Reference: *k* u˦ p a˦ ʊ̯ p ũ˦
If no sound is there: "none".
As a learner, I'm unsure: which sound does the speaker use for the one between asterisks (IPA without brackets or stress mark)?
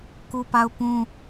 k